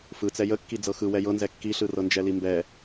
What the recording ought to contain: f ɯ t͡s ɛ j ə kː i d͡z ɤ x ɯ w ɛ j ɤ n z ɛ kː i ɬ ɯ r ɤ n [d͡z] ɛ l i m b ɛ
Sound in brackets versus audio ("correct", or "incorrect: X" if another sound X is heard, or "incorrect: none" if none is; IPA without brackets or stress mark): incorrect: d͡ʒ